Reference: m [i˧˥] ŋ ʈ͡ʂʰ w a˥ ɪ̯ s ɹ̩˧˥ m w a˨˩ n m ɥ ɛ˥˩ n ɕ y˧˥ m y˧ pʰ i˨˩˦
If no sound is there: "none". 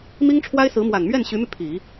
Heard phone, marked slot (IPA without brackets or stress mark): i˥